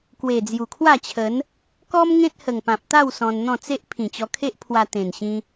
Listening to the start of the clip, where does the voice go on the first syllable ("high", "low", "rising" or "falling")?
low